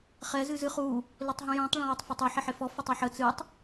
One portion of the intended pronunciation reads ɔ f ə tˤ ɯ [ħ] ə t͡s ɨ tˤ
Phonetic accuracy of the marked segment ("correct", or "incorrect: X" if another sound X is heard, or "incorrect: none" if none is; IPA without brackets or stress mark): correct